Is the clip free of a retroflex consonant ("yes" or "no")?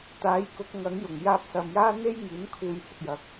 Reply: yes